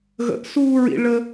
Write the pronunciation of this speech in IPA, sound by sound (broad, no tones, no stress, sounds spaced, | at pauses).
ɣ ə̰ ʔ s uː ɹ ḭ ɭ ə